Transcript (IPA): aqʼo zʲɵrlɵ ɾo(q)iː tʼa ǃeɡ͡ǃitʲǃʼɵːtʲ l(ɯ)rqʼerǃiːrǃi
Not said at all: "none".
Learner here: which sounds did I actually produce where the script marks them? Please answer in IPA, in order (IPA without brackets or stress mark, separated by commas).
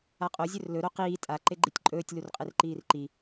q, u